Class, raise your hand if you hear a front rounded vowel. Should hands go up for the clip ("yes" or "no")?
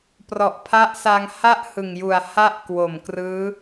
no